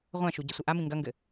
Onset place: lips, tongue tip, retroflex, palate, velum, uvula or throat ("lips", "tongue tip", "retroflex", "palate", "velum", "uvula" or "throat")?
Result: uvula